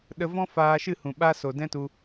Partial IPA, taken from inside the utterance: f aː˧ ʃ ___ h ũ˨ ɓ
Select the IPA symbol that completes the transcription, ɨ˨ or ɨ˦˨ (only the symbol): ɨ˦˨